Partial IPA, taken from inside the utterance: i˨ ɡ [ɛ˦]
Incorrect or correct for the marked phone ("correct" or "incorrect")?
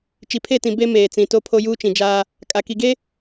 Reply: incorrect